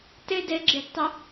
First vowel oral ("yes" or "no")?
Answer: yes